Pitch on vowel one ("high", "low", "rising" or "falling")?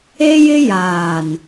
high